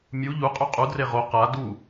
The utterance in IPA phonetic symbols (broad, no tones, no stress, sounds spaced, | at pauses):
mʲ u ʎ u qʼ ʉ qʼ u d r e ʁ o q a d u